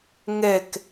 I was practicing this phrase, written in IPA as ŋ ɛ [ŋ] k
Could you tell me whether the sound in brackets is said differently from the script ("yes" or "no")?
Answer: yes